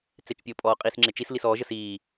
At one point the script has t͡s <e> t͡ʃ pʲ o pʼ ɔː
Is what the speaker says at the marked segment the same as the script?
yes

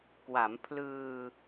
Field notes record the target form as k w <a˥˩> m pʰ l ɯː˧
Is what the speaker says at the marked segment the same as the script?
no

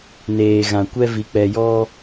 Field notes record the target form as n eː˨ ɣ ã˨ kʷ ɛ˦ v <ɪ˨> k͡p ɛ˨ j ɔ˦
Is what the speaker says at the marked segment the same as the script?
no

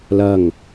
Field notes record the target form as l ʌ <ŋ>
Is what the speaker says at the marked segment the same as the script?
yes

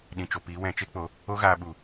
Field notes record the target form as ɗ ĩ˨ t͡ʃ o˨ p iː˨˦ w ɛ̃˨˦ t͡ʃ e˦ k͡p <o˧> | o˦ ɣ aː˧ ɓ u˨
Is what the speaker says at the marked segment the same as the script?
yes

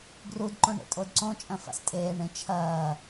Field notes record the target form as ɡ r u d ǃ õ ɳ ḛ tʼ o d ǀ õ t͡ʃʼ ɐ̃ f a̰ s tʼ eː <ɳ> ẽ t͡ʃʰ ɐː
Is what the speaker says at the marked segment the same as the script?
yes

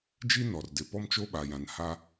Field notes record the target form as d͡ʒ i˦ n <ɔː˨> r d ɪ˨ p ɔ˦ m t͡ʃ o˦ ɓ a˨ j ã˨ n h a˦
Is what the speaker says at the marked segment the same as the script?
no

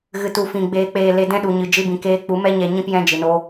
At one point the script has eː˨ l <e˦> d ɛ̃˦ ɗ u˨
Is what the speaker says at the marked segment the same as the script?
no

